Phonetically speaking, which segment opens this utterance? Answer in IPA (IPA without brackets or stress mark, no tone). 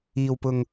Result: iː